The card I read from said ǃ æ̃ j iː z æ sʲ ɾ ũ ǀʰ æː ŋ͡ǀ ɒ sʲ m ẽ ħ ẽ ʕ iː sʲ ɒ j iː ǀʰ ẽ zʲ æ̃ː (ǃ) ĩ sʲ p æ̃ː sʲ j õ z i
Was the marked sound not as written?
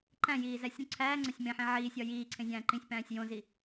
no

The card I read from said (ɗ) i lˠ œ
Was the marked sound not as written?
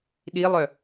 no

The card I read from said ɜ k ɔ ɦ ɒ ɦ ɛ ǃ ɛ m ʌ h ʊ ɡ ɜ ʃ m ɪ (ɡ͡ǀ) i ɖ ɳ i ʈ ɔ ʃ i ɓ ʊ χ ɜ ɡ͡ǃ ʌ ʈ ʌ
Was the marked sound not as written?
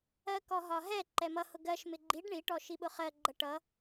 yes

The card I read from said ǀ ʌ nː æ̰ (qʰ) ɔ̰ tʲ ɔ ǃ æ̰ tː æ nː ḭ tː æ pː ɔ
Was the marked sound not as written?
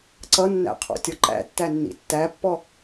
no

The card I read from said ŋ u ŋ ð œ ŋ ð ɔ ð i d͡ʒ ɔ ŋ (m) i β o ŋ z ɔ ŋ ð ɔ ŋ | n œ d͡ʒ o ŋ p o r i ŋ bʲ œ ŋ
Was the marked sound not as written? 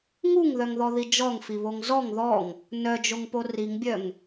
yes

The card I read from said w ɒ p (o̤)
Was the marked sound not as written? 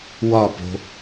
no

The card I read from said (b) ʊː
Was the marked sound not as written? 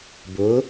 no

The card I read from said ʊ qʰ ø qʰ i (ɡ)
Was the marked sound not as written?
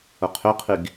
no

